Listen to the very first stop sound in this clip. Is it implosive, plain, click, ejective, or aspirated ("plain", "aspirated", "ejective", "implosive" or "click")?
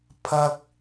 aspirated